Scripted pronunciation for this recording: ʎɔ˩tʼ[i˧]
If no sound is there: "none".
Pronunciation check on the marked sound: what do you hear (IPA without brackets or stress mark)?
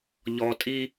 i˧